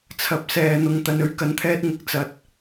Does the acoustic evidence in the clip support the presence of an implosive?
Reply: no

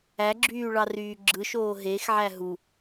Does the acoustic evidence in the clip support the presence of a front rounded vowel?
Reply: yes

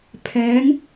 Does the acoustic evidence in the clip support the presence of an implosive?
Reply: no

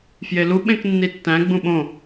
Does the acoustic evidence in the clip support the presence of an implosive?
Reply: yes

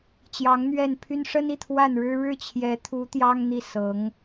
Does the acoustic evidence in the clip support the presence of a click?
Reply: no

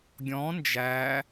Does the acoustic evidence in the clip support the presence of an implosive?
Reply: no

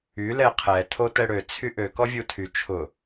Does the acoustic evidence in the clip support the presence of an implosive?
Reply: no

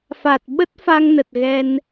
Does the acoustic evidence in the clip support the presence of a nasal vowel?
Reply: no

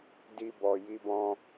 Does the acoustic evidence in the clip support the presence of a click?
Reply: no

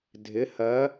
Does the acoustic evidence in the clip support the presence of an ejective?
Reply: no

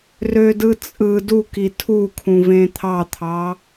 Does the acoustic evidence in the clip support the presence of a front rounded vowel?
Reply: yes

